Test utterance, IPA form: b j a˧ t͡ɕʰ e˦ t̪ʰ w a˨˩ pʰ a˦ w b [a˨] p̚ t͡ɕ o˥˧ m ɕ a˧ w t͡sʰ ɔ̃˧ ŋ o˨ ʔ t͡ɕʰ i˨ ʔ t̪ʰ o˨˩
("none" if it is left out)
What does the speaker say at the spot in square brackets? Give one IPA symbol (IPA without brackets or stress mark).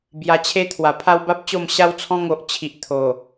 a˦